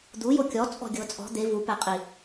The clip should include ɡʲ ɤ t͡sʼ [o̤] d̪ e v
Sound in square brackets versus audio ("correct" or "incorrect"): incorrect